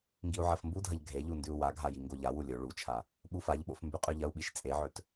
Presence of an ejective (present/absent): present